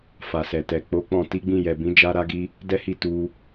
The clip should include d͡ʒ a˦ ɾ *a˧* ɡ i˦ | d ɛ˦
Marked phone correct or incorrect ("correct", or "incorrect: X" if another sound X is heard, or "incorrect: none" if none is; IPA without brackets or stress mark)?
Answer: incorrect: a˦